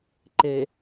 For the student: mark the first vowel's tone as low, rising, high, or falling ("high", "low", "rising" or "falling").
low